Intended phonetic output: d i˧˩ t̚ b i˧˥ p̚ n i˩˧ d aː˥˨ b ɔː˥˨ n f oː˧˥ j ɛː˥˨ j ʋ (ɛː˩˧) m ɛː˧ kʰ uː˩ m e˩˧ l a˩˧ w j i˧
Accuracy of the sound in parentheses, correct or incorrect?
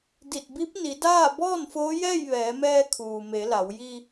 correct